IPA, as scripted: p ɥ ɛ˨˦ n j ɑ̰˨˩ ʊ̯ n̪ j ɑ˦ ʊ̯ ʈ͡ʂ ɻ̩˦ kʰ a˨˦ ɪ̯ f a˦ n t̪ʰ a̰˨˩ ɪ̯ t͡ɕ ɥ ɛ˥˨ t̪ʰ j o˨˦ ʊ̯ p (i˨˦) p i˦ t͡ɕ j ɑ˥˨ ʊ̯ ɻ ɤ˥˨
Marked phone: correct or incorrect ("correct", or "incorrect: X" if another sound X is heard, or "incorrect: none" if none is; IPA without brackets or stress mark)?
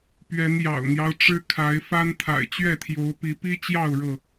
correct